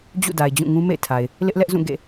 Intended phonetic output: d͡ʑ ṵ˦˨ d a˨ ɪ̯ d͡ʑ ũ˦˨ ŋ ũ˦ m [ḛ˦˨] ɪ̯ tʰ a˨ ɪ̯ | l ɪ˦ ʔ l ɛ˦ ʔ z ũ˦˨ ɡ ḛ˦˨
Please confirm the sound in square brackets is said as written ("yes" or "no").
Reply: yes